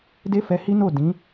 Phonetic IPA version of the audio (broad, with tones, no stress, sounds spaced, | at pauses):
d e˦ f ɛ˧ h i˦ n o˦˨ d ĩ˨˦